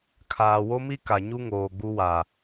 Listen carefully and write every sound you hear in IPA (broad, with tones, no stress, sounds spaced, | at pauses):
kʰ aː˨ w o˦ m i˦ k a˨ ɲ u˦ ŋ oː˨ ɡ͡b u˦ w a˨